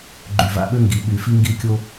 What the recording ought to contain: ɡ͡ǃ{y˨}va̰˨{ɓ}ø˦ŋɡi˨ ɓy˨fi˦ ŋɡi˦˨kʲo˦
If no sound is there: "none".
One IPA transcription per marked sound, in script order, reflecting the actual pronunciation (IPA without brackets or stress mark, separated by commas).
y˨, ɓ